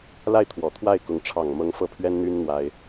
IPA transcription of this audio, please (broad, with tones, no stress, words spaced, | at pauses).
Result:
la˥˩ɪ̯t̪ʰwɔ˨˩t̪ʰwa˥˩ɪ̯kʊ˧˥ŋ ʈ͡ʂʰɑ˨˩ŋmɤ˧˥ŋ fɤ˥˩pʰɥɛ˥nn̪y˥n n̪wa˥ɪ̯